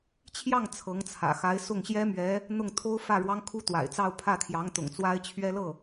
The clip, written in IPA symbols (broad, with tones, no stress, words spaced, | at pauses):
t͡ɕʰjɑ˥˩ŋ t͡sʰɤ˧˥ŋt͡sʰä̰˨˩xa˧˥ɪ̯ sʊ˥˩ŋɕjɛ˥mɥɛ˧˥ | n̪ʊ˥˩ŋt̪ʰo˥ʊ̯fä˥˩ ɻwɑ˥ŋkʰu˥t̪wa̰˨˩ɪ̯t͡sɑ˥˧ʊ̯ pʰä˥˩t̪ʰjɑ˧˥ŋt̪ʊ̰˨˩ŋ t͡swa˥ɪ̯t͡ɕʰɥɛ˥lɤ˥˩